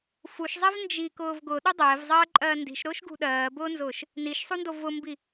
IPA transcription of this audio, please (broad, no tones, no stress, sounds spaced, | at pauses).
f u ʃ zˤ ɛ v n d͡ʒ i k ʊː v ɡ ʊ ɗ ʊ dˤ ɛː v zˤ ɜː ǃʼ ɜː n d i̤ ʃ ɾ ʊː ʃ ɡ ṳ ɗ ɜː b ʊː n z ʊː ʃ | n i ʃ sˤ u n d o v ʊ m b i